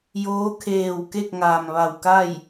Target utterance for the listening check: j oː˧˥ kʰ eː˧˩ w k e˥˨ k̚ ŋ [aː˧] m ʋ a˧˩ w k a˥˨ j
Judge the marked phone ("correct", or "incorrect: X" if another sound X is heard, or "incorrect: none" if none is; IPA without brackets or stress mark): incorrect: aː˩